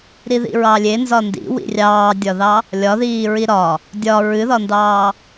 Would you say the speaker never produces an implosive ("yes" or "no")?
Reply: yes